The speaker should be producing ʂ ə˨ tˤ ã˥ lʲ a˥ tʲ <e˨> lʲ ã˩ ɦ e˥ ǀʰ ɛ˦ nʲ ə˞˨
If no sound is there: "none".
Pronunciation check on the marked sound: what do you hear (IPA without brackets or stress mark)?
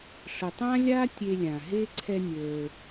e˦